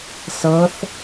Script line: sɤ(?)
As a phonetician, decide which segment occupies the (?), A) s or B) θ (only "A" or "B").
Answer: B